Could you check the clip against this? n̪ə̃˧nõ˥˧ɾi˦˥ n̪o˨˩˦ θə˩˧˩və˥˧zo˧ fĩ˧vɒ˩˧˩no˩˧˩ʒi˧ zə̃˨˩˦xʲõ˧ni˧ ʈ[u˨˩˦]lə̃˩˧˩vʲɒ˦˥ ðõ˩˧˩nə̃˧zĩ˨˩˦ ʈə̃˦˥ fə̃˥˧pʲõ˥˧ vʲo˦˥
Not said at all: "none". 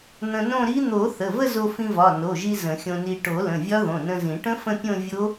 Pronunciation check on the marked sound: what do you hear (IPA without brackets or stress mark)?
o˨˩˦